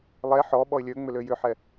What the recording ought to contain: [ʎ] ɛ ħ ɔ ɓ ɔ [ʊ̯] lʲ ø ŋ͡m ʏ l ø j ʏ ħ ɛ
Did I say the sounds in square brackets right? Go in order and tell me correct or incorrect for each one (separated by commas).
incorrect, incorrect